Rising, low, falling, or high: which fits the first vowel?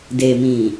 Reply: low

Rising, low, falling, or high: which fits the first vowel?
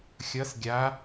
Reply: rising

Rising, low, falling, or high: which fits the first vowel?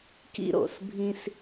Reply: high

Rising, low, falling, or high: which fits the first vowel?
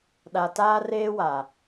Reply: low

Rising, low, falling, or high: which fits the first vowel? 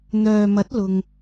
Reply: low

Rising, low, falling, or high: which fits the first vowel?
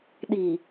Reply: low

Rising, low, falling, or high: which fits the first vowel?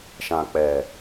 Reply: low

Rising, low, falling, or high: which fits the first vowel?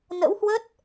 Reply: rising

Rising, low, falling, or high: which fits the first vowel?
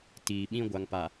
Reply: low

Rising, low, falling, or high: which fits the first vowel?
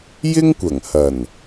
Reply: high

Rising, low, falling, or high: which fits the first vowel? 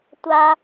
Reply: high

